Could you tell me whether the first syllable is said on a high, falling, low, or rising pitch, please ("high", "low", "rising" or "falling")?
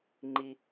high